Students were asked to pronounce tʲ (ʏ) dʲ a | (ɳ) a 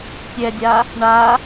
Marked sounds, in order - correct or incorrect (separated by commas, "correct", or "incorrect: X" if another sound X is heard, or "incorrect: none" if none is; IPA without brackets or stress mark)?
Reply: incorrect: ɛ, correct